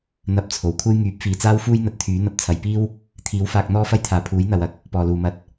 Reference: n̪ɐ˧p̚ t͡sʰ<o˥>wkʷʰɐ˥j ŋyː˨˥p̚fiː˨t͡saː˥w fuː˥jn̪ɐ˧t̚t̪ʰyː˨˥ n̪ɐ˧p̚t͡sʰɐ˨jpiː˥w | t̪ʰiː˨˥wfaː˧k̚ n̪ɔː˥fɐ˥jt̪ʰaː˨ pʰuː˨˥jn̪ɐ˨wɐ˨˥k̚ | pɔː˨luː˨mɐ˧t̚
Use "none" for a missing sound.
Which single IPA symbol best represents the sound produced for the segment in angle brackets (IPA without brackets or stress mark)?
o˨˩